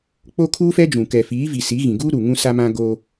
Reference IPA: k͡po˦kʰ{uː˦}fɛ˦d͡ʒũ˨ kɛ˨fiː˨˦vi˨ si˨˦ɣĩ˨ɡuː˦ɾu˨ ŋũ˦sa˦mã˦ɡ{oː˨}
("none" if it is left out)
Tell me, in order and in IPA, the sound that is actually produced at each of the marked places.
uː˦, oː˦

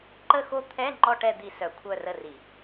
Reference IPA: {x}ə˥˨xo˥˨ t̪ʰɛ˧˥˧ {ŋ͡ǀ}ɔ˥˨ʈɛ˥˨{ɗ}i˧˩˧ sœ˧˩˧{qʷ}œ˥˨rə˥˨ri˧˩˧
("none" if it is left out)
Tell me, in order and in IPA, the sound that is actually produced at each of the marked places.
ǃ, ŋ͡ǃ, d̪, kʷʰ

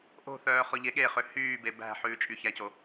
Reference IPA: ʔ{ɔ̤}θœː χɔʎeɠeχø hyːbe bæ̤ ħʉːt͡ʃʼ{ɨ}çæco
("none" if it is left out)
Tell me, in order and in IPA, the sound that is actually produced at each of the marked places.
o̤, y

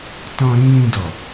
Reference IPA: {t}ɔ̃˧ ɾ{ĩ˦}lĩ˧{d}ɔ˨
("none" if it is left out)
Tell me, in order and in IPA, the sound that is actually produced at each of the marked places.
t, ĩ˦, d

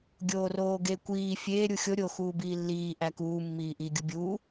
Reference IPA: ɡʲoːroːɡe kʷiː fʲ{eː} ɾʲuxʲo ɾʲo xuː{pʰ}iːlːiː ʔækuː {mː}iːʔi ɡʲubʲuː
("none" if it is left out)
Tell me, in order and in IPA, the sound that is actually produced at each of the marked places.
eː, b, mː

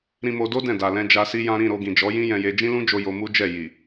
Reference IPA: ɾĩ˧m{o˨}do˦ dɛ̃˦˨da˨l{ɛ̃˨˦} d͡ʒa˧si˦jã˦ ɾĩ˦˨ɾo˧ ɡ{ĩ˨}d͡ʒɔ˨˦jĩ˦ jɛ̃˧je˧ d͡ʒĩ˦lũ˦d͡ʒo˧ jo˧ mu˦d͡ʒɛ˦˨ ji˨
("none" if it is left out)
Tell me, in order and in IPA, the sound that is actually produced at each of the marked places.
o˧, ɛ̃˧, ĩ˨

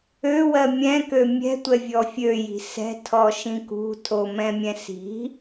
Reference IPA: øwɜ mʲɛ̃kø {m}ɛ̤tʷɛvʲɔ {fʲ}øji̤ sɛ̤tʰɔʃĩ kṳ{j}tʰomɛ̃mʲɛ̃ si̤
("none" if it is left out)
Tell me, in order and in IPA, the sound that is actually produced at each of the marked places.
mʲ, fʲ, none

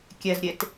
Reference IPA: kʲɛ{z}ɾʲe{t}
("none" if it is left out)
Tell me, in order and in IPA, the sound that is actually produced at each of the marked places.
z, t

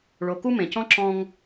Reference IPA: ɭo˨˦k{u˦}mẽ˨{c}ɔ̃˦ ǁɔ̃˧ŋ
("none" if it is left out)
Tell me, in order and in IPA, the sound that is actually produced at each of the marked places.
u˦, c

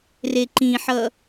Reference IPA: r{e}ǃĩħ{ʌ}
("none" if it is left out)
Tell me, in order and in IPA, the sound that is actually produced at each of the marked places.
e, ʌ

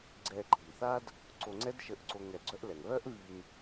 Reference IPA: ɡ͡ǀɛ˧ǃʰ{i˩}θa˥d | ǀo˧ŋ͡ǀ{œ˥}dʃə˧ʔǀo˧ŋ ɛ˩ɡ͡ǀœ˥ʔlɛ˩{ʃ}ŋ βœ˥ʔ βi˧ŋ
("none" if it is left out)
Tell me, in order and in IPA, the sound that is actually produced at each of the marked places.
i˩, ɛ˥, none

